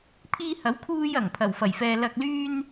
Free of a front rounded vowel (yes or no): no